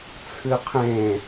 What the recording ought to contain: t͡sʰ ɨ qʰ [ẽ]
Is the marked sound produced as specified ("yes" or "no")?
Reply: yes